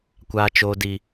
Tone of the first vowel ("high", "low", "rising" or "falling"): low